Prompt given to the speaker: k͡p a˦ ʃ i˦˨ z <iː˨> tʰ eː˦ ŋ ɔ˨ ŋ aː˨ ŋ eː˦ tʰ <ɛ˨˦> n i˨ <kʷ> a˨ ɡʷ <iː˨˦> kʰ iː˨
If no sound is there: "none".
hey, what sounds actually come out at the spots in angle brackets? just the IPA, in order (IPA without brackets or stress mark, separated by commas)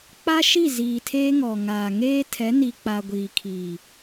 iː˨, ɛ˨˦, k͡p, iː˨